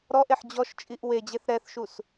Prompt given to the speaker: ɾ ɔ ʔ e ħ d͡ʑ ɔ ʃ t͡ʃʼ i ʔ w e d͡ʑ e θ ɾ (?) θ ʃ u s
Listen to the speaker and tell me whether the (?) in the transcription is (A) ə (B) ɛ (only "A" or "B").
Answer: B